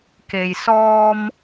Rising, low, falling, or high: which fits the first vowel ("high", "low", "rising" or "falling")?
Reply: low